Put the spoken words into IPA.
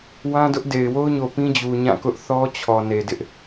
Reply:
w ã˦ d ʊ˦ ʔ d e˨ ɪ̯ w o˦ ʊ̯ ɲ o˨ p ĩ˦ d͡ʑ u˨ ɲ ã˦˨ k ʊ˦ ʔ θ ɔ˦ t͡ɕʰ ɔ˨ n e˨ d ɪ˦ ʔ

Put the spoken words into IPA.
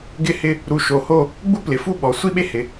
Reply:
ɡ ɪ˥˧ h ɪ˥˧ | ɾ u˧˩ ʃ o˧˩ h o˥˧ | ɡ͡b u˥ p l ɪ˩˧ f u˥˧ ɓ ɔ˩˧ sʷ i˥ ɓ e˥ h ɪ˩˧

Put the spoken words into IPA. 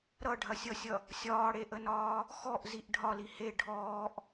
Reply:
ɾ ʌ ɖʱ ɐ sʲ ʌ sʲ ʌ | sʲ ɒː ɽ e ʔ ə n ɒː | x ɔ ʔ z i ʔ ɖʱ ɒ l i h e ɖʱ ɔː ʔ

